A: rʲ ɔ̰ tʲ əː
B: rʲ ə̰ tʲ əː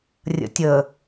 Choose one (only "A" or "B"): B